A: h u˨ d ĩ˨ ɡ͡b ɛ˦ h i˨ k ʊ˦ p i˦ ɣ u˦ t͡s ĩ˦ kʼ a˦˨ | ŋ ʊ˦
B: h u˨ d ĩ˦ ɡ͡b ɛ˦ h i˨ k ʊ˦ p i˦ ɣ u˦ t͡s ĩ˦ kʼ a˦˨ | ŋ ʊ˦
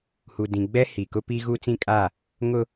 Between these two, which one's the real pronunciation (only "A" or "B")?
A